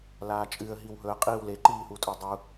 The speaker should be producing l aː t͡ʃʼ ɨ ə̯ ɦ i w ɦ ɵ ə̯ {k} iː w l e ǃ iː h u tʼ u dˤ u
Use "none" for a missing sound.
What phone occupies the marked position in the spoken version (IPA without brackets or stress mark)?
qʼ